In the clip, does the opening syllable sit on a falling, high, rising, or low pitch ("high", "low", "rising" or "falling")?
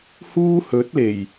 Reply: high